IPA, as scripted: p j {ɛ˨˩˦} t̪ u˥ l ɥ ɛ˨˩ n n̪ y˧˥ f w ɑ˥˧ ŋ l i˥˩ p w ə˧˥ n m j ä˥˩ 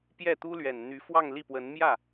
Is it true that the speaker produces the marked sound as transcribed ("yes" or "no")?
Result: no